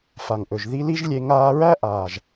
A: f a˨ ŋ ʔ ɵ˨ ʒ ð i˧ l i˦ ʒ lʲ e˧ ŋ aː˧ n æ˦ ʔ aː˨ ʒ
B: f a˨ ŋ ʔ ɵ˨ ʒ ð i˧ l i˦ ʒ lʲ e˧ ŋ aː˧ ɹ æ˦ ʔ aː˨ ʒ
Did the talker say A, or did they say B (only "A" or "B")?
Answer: B